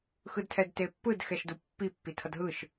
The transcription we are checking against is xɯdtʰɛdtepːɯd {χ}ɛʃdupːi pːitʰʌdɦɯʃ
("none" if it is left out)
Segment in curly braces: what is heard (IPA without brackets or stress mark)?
x